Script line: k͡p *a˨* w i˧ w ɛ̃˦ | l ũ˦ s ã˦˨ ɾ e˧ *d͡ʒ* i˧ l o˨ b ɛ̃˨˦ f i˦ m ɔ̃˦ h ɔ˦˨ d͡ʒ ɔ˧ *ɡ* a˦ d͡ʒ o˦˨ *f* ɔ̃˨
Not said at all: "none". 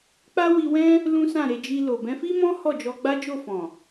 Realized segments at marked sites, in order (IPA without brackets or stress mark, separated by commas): a˦, d͡ʒ, ɡ͡b, f